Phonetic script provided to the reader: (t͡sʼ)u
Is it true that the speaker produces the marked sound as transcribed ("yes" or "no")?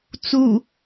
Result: no